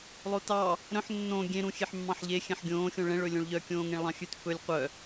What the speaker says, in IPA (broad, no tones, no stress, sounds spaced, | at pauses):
lˠ o t ɑ | ɾ œ̃ ħ nː õ ɡʲ ẽ ɾ ũ xʲ e ħ mː ɑ̃ ħ ʎ e xʲ ɛ̃ ħ ɡʲ õː xʲ õ ɭ ɛ̃ ɭ ɵ lʲ õ ɭ ʎ œ kʲ õː ŋ ẽ ɭ lˠ ɑ̃ xʲ ʉ t f ɵ lʲ qʷ œ